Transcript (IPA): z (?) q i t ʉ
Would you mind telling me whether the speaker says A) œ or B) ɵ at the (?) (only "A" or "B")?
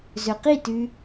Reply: B